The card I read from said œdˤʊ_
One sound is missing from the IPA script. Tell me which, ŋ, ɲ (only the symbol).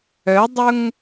ŋ